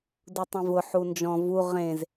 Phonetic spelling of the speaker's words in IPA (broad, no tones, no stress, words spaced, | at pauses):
dutˤẽvʊ ħund͡ʒɔ̃ vu ʁẽz